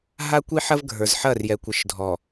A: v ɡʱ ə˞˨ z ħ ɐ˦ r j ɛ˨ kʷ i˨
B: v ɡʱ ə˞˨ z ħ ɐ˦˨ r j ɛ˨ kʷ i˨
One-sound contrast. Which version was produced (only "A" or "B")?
B